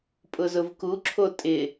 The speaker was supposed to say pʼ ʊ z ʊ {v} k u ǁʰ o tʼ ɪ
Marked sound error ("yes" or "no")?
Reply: no